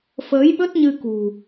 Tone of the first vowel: rising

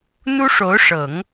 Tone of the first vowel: high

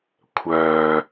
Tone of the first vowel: low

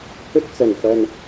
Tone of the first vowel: high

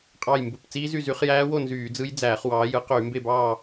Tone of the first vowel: falling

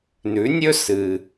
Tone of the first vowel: rising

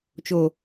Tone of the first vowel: low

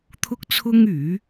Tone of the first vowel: high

